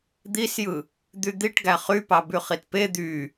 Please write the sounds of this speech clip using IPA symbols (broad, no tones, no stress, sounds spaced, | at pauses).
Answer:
d̪ i s j ɯ | d̪ y d̪ i ʈ ɡ æ χ y p ɑ b y χ i t p e d̪ y